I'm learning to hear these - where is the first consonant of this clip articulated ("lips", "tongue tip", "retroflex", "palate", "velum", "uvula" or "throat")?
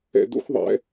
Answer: tongue tip